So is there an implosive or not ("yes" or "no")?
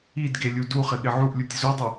yes